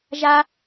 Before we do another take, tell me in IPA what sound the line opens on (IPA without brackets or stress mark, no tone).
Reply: ʒ